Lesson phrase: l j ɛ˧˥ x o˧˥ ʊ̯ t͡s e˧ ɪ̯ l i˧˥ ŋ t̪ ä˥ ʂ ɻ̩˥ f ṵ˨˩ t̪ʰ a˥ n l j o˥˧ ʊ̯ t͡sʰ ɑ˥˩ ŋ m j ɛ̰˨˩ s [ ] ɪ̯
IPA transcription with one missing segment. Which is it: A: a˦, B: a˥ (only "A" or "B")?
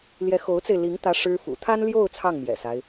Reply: A